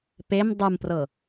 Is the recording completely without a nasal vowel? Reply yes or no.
yes